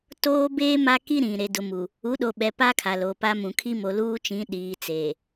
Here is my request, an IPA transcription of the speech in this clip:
t oː˦ b eː˦ m a˦ k i˦ ɾ ĩ˨ ɾ e˨ d ʊ˨ m u˨ | u˨˦ ɗ o˨ ɓ ɛ˨ p a˦ kʰ a˨ l o˨ p a˦ m ũ˨ kʰ i˦ m o˨ l uː˦ t͡ʃ ĩ˨˦ ɗ iː˨ t͡s eː˨

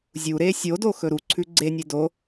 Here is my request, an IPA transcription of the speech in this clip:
zʲ u ɾ e sʲ o d o x ɵ ɾ u ǀʰ ʉ ɡ͡ǀ e nʲ e d o

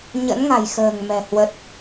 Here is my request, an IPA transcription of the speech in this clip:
ɲ ə̰˧˥ n ŋ a̤˨˩ j x ə̤ː˨˩ ŋ m ɛ̤˨˩ h w ə˦˥ t̚

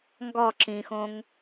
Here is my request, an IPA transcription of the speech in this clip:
ŋ ɡ ɒ ǁ ĩ x õ ŋ

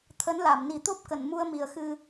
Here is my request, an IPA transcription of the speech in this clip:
t̪ʰ ə˨˦ n l a˧˩ m n i˨˩ t̪ o˦˥ p̚ k ə˧˩ n m u˧ ə̯ m i˨˩ ə̯ x ɨ˧

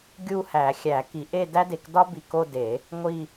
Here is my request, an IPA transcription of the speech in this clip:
ɡʲ u˥˧ h æ˨˩˦ xʲ æ˨˩˦ k i˨˩˦ ʔ e˥˧ d æ˥ d e˨ k d ɒ˥ b i˨ k o˥˧ d e˨˩˦ | ŋʷ i˥˧

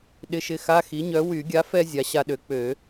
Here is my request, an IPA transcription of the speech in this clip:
ɗ ɪ˧˥˧ ʃ ɪ˧˥˧ x a˧˥˧ x i˩˥ ɲ œ˩˥ w y˨˩˦ ɡʲ a˩˥ f ɛ˧ zʲ a˩˥ ɕ a˧ ɗ ø˩˥ k͡p ø˨˩˦

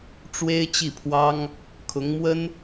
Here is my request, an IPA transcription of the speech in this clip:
ʈ͡ʂ w e˥ ɪ̯ t͡ɕ i˥˩ pʰ w ɑ˥ ŋ | kʰ ʊ˧˥ ŋ m w ə˥ n

